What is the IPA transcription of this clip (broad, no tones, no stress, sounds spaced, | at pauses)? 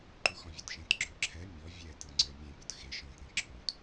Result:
ǃ u x ɔ̃ vʲ ə˞ t ʃ ẽ t ɡ͡ǁ ɵ ǁʰ ɛ mʲ ɔ vʲ ɛ t ɯ ŋ͡ǀ ə˞ mʲ ẽ pʲ ɔ t x e ʃ ɔ̃ t ɾ ẽ ǁʰ ũ t